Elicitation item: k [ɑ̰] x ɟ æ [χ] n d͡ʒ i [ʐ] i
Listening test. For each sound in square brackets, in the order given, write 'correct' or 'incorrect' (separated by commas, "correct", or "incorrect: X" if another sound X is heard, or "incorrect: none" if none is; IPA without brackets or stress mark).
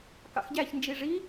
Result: correct, incorrect: ç, correct